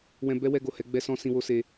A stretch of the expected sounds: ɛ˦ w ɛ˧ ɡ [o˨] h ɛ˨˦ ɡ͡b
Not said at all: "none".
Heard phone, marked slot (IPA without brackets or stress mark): o˨